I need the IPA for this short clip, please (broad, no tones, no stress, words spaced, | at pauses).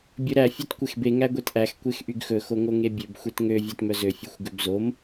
bʲɵɾæ fʲøtkʷexbe ŋæɡʷetʔæx kʷexʔyɡxɵ xoŋoŋebʲøb xʷetŋø vʲætmœzø fʲøxʷɡøbzom